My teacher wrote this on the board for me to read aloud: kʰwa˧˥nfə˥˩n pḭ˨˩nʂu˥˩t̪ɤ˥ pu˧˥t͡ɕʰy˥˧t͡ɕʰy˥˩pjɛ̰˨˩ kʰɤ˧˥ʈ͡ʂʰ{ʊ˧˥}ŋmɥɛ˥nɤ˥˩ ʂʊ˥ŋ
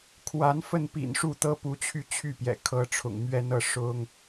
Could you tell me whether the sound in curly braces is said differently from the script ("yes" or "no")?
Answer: yes